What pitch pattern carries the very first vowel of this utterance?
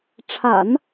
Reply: low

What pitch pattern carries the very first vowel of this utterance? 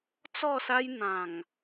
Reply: falling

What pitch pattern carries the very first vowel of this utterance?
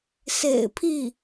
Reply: low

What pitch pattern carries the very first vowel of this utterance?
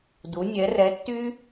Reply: rising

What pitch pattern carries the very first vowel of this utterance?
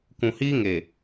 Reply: low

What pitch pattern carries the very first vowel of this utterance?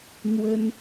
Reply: high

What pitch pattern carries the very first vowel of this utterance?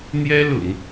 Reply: high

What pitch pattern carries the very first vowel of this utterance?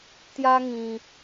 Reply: high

